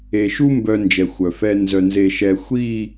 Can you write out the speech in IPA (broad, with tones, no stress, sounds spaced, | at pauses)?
e˨ ʃ u˦ m b œ˦ n d͡ʒ ɛ˨ xʷ œ˨ f ɛ˦ n z œ˨ n z e˨ ʃ ɛ˨ xʷ i˦˨